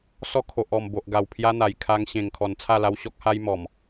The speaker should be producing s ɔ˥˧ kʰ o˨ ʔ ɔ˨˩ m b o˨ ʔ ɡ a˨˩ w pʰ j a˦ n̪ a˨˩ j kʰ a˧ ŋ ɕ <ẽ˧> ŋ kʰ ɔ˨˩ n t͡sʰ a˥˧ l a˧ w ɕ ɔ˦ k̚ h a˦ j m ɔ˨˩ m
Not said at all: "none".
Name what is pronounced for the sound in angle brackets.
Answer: ẽ˨˩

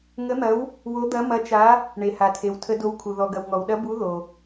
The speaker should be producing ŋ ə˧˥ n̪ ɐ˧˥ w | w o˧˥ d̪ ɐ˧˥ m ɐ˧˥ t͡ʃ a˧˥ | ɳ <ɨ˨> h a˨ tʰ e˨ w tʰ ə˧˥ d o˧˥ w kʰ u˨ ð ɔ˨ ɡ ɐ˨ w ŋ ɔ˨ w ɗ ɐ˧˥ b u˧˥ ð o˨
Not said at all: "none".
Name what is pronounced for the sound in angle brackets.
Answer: e˨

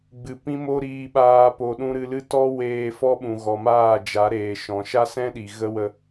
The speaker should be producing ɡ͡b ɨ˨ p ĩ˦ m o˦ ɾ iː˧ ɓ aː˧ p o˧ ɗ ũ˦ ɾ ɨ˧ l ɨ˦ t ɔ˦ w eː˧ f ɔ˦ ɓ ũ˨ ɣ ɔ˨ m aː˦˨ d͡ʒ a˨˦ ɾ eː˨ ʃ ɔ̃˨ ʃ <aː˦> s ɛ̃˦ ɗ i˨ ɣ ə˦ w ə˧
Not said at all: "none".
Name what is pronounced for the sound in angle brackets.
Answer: a˦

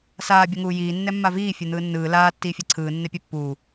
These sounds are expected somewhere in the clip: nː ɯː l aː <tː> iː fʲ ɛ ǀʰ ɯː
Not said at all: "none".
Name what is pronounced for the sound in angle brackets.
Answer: tː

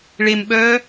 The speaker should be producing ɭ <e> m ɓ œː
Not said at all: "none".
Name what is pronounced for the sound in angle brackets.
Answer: e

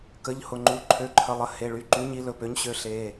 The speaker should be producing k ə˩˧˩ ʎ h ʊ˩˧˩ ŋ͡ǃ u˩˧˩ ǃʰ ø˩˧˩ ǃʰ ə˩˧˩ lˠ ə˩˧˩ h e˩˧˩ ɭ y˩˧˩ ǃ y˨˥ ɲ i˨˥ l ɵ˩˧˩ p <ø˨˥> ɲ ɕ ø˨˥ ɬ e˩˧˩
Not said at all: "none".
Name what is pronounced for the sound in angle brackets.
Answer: ø˨˥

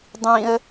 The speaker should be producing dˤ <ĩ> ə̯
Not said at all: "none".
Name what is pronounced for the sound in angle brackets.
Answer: ĩ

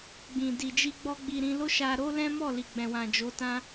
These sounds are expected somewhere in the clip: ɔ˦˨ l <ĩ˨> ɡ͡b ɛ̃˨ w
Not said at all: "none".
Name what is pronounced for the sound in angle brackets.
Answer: i˨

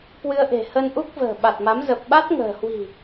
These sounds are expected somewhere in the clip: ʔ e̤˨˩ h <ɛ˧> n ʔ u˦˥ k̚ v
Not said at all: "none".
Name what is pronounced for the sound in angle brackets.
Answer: ə˧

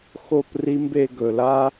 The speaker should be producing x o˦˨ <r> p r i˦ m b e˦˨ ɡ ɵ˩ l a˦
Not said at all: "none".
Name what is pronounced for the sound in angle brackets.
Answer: none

